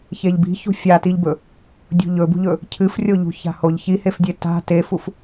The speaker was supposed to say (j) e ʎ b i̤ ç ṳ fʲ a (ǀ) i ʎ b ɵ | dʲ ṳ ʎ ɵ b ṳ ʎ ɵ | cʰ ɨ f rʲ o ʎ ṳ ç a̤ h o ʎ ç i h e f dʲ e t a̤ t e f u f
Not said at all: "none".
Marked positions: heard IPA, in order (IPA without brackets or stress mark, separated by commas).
ç, t